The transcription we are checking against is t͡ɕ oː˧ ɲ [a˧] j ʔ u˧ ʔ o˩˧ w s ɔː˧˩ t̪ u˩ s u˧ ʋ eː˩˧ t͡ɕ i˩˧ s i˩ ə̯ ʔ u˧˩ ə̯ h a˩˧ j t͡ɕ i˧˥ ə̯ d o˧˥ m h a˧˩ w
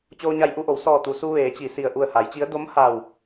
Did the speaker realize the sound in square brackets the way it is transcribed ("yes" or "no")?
yes